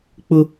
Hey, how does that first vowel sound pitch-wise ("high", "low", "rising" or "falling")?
high